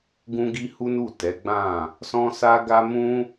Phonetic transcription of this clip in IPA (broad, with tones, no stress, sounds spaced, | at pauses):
ɡ ũ˦ ɡ i˦ h u˦ n u˦˨ t ɛ˨˦ ɡ͡b ã˦˨ | s ɔ̃˦ s a˦ ɡ a˦ m ũ˦